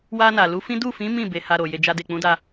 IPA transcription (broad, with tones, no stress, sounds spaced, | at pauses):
w a˧ n a˨ l u˨˦ f ĩ˦ d u˦˨ f ĩ˨˦ m ĩ˦˨ b e˨˦ h a˧ ɾ o˨ j e˧ d͡ʒ a˦ d e˦˨ k͡p ũ˨˦ d a˧